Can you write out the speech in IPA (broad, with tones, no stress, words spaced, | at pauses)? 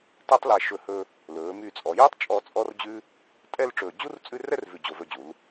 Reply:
tæ˥tˤ læ˧ ʃɵ˧˩hɵ˧ | lɵː˩˧my˧˩t͡sʼɔ˩˧jɵː˥tˤ t͡ʃʼɔ˥˧t͡sʼɔ˥rd͡ʑʉ˥ | tʼɛ˥˧lʈ͡ʂɵː˧˩ d͡ʑu˥rt͡sʼʉ˥˧rɛ˥rvʉ˧˩ d͡ʑo˧˩vɵ˧d͡ʑu˩˧l